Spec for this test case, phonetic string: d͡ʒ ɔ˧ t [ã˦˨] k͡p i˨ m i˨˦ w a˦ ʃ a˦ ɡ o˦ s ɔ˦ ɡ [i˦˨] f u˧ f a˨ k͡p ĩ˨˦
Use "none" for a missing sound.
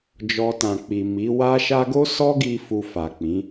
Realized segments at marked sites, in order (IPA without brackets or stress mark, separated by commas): ã˨, i˧